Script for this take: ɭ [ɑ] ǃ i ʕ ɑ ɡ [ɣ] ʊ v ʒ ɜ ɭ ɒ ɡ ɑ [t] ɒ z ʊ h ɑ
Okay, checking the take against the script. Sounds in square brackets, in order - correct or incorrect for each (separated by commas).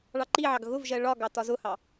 correct, correct, correct